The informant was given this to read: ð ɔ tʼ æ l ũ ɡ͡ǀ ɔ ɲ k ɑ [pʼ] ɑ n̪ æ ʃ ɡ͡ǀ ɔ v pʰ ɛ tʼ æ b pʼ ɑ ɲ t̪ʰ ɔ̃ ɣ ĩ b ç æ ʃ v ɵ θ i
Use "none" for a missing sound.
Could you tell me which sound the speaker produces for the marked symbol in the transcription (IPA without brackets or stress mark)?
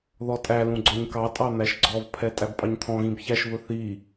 tʼ